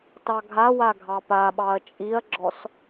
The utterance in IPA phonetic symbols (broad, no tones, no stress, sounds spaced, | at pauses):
t ɑ ɡʱ a w a ɡʱ ɑ p a ɓ ɑ ɐ̯ t͡ʃʼ i ɐ̯ ɡ͡ǁ ɔ s